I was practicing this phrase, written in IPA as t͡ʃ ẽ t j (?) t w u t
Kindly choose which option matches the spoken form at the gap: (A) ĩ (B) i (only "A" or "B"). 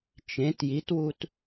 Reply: B